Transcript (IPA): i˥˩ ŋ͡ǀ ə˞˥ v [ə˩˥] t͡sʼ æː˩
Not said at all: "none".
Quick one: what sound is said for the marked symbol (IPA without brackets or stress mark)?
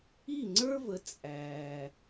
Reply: ə˩˥